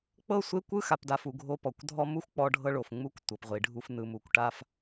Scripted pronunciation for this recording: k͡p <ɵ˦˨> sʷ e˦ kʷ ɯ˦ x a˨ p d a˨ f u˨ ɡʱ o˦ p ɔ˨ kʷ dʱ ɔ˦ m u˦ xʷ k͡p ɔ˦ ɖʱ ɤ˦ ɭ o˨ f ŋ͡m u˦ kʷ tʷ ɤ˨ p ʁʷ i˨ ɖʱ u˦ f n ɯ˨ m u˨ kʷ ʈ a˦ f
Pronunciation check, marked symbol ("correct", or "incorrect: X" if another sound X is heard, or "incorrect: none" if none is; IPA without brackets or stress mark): incorrect: ɤ˦˨